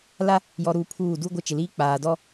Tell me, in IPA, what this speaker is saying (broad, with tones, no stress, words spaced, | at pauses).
la˦ | jɔ˨ɾuː˨ pʰuː˦˨ du˦ɡʷɪ˦ t͡ʃɪ˨liː˦ k͡paː˨dɔ˦